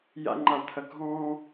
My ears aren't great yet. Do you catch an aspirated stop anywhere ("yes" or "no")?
yes